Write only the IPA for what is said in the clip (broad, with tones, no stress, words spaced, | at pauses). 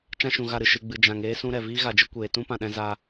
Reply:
t͡ʃã˦ʃũ˨ɣa˦˨ɾɨ˨ ʃɨ˨ɡ͡bɨ˨ d͡ʒã˨ŋeː˦ sũ˦ɾɛ˨ viː˦ɣa˨d͡ʒɨ˦ kʷeː˨tũ˦pã˨ɗɛ̃˧ za˦